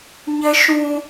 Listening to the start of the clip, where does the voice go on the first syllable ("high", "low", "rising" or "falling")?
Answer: high